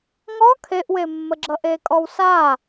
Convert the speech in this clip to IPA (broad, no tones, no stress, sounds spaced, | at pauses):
ŋ ɔ kʰ e ʔ w e mː ə ɡ͡ǁ ʌ ʔ e kʼ ɔ w s a